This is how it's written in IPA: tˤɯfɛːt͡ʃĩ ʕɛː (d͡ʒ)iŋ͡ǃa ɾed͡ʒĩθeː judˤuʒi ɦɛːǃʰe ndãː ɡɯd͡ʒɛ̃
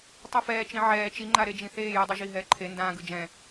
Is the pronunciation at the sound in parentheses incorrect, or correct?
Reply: incorrect